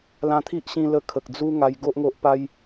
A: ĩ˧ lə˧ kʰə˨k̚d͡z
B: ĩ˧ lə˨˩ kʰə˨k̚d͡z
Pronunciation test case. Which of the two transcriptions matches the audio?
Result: A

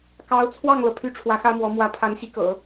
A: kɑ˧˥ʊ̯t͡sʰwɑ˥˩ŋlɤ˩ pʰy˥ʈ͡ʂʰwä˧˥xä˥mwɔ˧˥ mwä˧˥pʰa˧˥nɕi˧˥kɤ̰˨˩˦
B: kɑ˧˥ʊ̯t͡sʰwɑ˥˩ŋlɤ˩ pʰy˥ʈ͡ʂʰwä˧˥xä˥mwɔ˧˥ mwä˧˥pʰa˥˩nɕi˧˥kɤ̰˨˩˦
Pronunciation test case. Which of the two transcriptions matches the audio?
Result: A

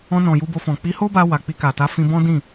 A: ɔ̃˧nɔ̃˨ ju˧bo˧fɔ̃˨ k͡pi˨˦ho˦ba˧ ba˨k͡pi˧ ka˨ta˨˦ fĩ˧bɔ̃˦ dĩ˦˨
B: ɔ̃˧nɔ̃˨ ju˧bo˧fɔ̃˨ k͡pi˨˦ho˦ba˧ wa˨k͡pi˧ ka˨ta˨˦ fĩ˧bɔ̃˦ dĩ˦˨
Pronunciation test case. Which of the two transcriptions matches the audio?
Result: B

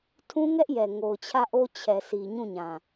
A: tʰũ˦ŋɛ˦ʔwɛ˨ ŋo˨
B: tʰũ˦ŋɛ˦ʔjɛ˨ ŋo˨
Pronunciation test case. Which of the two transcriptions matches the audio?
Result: B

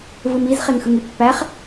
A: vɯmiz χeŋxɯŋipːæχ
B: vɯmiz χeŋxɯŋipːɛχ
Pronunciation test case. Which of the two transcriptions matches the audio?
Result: A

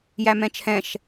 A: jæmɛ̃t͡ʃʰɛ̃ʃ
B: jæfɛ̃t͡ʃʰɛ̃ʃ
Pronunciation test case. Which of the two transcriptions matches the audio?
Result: A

